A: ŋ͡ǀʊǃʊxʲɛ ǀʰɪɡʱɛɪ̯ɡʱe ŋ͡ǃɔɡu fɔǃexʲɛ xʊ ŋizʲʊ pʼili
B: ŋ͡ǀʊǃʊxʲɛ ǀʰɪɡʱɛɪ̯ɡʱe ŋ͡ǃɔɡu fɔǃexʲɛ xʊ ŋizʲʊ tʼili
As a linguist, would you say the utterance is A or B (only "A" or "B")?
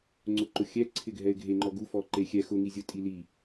B